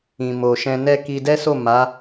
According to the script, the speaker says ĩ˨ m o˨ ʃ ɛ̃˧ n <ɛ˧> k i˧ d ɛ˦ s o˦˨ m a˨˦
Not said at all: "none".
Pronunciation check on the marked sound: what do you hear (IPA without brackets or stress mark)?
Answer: ɛ˦